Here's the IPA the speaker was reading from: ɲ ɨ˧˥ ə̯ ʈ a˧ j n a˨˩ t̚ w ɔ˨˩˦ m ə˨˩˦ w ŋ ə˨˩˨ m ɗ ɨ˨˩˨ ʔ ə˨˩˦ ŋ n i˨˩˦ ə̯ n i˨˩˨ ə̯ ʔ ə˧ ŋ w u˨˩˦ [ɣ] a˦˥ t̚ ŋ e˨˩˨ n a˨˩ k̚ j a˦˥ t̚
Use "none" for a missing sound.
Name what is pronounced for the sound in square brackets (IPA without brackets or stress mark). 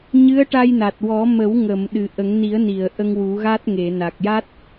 ɣ